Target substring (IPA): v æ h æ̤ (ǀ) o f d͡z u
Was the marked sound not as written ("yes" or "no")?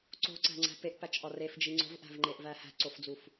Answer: no